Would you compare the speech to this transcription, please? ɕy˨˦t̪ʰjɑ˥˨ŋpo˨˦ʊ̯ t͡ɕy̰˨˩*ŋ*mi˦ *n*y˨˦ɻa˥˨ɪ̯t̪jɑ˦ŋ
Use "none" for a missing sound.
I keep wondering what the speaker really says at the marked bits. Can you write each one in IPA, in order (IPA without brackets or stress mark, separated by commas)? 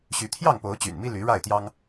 n, l